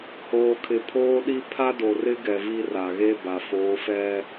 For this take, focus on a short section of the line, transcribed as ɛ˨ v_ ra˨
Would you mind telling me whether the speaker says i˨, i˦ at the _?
i˦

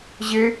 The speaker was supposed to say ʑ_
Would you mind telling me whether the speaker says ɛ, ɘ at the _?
ɘ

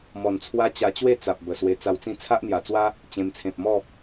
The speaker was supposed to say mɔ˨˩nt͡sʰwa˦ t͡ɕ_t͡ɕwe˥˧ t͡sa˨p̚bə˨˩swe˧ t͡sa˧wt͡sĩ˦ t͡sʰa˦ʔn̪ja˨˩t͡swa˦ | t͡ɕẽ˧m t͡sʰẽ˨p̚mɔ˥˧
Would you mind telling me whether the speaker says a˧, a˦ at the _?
a˧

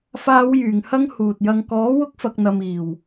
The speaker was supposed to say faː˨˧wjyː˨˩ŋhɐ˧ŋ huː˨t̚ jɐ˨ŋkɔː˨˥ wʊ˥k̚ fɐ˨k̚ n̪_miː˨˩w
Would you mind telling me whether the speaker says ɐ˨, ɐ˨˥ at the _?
ɐ˨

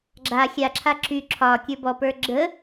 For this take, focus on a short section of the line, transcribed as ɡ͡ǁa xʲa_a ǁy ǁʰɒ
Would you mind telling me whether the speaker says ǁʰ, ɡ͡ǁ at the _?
ǁʰ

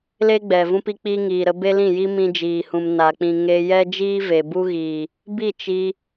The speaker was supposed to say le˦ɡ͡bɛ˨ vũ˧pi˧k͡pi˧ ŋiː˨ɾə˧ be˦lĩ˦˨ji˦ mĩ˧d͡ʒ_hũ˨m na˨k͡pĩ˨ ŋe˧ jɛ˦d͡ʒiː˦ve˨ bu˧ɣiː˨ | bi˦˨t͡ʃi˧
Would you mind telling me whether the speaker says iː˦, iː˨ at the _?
iː˨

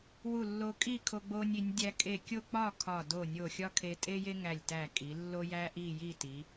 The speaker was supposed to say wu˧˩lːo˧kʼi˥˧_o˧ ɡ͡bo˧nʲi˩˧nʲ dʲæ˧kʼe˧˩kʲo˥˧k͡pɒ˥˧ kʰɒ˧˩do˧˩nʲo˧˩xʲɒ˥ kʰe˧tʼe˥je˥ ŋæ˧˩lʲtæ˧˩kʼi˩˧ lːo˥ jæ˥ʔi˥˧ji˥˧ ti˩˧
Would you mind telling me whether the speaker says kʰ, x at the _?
kʰ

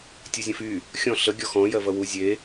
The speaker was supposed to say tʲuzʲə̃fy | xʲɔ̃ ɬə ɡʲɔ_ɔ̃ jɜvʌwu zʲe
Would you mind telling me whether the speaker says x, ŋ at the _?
x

